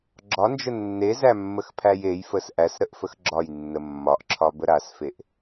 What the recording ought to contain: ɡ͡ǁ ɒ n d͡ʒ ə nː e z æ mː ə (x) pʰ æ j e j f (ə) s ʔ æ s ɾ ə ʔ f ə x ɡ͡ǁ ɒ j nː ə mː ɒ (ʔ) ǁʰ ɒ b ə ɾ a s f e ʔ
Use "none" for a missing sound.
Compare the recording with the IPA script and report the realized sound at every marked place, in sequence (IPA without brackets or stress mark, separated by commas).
x, ə, ʔ